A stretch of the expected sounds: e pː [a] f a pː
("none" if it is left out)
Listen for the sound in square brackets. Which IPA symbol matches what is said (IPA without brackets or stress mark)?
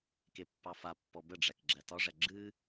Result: ɑ